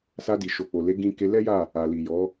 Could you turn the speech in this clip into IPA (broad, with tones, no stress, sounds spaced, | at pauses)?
s a˧ d i˨ ʃ o˨ k͡p o˨ l e˨˦ ɡ ĩ˧ k e˧ l ɛ˦ j a˦˨ | a˨ l i˨ j ɔ˨˦